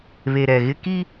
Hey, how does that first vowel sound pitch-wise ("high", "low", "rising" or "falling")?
low